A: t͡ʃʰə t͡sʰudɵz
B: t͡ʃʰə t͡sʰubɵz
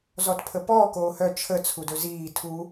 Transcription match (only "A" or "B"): A